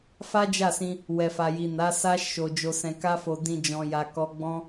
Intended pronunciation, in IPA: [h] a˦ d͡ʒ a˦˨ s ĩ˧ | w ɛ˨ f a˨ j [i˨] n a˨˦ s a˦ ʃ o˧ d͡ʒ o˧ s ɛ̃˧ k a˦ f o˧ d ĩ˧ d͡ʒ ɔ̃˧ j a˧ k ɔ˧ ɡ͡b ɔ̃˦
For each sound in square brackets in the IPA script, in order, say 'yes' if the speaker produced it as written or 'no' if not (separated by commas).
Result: no, yes